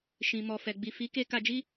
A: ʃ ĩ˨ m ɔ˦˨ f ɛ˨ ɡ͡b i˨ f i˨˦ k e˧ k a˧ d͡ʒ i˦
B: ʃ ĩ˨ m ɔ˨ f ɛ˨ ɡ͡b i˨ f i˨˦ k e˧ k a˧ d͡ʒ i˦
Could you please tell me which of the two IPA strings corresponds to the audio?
B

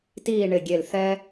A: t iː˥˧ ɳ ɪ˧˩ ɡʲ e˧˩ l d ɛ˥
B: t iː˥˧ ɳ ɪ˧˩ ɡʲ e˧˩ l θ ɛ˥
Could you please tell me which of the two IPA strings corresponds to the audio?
B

